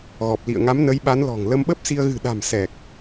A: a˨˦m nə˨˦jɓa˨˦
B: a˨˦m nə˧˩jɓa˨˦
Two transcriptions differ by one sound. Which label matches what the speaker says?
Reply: A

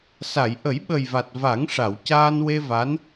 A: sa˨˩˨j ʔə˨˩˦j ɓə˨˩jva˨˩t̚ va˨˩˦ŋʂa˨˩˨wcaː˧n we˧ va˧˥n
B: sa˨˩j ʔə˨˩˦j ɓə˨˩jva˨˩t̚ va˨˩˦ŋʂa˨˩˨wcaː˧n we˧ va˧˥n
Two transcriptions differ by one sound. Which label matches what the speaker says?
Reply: A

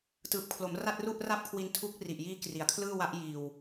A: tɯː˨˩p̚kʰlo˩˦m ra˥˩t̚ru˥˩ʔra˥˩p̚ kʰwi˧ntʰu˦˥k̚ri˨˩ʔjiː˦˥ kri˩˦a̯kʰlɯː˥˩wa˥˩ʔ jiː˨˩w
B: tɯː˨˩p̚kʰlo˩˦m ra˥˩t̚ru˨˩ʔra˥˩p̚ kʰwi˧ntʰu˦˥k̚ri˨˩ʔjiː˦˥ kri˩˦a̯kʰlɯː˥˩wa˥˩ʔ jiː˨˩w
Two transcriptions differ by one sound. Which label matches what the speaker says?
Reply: A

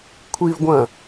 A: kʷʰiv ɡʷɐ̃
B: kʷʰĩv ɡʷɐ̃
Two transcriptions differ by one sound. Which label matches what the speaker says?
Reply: A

